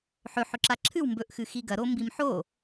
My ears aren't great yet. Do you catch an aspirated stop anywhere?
yes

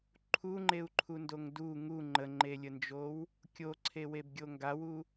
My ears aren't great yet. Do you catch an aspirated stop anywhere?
yes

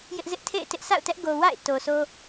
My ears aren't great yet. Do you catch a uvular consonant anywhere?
no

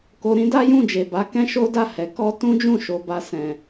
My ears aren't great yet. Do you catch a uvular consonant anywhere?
no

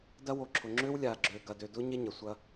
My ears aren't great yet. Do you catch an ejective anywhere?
no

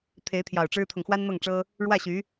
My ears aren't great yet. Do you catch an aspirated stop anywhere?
yes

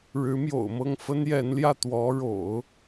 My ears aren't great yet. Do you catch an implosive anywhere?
no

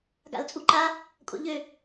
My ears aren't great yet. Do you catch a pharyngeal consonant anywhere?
no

